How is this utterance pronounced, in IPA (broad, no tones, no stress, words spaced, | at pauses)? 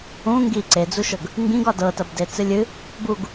ũ ŋɡi ǀed͡zuʃɤɡ | ŋɡĩɡɒ dɤtɐbdet͡sɨ lʲɨ | buɡ